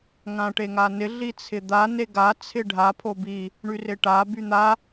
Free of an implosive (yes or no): yes